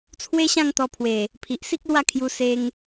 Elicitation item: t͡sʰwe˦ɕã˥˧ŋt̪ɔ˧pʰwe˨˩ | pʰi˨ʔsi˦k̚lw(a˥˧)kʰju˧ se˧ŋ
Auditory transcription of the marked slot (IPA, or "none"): a˥˧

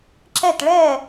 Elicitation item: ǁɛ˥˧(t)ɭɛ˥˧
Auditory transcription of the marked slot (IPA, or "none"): t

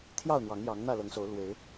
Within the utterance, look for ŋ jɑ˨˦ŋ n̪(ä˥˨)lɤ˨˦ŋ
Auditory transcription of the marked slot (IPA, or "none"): ä˥˨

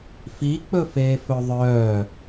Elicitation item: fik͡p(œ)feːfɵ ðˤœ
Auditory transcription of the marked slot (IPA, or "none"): ɵ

